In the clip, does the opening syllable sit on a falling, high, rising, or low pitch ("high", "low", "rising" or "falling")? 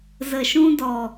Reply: low